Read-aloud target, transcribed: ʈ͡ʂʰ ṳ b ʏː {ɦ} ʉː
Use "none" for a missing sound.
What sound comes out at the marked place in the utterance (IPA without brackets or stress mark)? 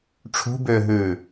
ɦ